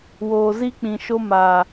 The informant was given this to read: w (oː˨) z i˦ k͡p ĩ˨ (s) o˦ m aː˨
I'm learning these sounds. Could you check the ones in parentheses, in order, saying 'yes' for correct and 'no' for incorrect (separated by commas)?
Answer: yes, no